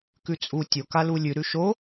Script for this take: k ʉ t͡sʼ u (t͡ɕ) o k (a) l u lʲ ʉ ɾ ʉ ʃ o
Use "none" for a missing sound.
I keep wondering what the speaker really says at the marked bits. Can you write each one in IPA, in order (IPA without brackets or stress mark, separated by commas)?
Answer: tʲ, a